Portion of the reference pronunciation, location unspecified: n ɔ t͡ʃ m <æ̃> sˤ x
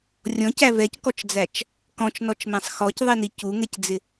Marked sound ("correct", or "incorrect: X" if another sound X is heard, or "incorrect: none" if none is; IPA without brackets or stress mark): correct